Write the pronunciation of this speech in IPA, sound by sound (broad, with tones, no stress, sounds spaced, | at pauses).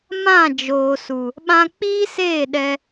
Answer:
m ã˦˨ d͡ʒ oː˨ s u˨ | ɓ ã˧ k͡p iː˦ s eː˦˨ ɗ ɛ˧